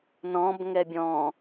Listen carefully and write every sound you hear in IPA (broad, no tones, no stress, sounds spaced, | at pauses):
n ɔ̃ b ŋ ɛ bʲ ɔ̃